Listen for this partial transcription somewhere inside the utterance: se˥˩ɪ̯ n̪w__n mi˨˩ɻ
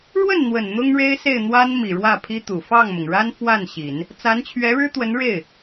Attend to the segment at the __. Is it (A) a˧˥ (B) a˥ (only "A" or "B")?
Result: B